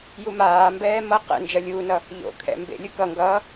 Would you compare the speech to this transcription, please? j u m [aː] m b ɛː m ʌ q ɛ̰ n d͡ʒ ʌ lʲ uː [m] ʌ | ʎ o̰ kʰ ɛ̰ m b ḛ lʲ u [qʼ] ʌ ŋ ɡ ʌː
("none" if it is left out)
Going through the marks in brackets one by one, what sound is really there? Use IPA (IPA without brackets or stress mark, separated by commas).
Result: aː, n, k